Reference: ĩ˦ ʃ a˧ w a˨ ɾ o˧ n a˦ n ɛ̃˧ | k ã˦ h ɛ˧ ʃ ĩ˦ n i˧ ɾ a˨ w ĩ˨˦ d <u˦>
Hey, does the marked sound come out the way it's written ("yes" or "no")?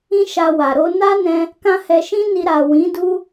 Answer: yes